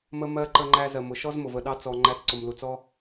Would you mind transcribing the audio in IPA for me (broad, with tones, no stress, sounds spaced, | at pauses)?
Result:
m ə˧ m ɜ˧ ǃ ə˧ ŋ͡ǃ æ˧ z ɜ˨ m ʊ˨ ʃ ɔ˦ z m ʊ˨ v ə˦˨ ɗ ɑ˦ t͡s ɔ˧ ŋ͡ǃ æ˧ t͡s ǀ ʊ˨ m l u˨ t͡s ɔ˦